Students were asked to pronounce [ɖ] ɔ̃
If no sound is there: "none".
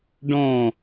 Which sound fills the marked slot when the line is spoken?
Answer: ɖ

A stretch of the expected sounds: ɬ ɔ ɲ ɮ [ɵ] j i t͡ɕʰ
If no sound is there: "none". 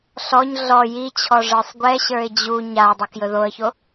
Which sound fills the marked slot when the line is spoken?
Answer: ɔ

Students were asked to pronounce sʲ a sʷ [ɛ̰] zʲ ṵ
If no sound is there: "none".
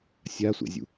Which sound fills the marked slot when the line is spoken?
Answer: ɛ̰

